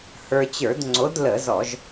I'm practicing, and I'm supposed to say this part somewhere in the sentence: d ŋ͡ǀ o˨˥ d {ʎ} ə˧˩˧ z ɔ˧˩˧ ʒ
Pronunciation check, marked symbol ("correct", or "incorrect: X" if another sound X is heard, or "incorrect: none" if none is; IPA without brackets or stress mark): incorrect: l